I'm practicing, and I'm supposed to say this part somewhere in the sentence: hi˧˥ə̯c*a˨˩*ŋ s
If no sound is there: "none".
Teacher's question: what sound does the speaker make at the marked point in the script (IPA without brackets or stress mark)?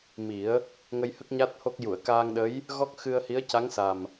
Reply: a˧˥